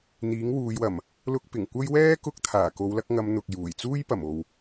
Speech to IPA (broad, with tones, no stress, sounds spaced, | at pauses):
n̪ iː˨˥ ŋ w uː˨˧ j w ɐ˨˩ m | l ʊ˧ k̚ p ɪ˨˩ ŋ kʷ ɐ˥ j w ɛː˥ k ʊ˥ k̚ t̪ʰ aː˨˩ k o˨˧ w l ɐ˧ k̚ ŋ ɐ˨˧ m n̪ ʊ˨ k̚ j uː˨˩ j t͡s uː˥ j p ɐ˨˩ m o˨ w